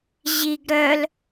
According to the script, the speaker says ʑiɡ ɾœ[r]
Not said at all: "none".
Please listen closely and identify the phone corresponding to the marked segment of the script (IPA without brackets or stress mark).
l